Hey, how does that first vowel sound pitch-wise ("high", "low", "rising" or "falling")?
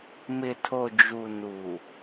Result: low